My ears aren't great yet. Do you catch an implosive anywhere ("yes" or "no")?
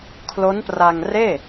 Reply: no